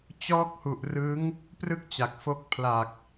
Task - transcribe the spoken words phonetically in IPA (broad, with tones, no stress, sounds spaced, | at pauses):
t͡ɕ ɔː˦˥ k̚ h u˨˩ ʔ r ɯ˦˥ ŋ | p r ɯ˥˩ k̚ t͡ɕ a˨˩ k̚ f o˦˥ k̚ pʰ l a˨˩ k̚